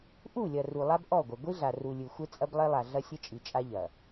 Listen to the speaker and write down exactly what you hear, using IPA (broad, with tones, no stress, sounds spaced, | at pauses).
ʔ u˦˨ lʲ ɐ˨ r u˨ lˠ a˦ b ʔ ɔ˦˨ ɡʷ ɐ˨ ɡʷ i˦ ɮ a˨ r u˨ lʲ ɨ˨ xʷ ɘ˦ t͡sʼ ɐ˦ b lˠ e˦ lˠ a˨ ɮ ɐ˦ sʲ ɘ˦ t͡ʃʼ i˨ t͡ʃʼ a˦ ʎ ɐ˨